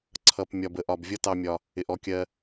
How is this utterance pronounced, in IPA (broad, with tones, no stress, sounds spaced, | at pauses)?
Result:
ǀʰ ʌ˩ p mʲ ɒ˩ b ə˩ ʔ ɒ˩ b vʲ ʌ˥ t ɑ˧ mʲ ɒ˩ | ɪ˩ ʔ ɔ˧ kʲ ɜ˧